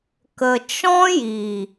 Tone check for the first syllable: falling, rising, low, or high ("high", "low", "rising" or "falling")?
low